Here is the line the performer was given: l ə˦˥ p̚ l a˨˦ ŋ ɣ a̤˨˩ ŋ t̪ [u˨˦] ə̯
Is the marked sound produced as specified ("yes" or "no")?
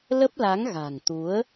yes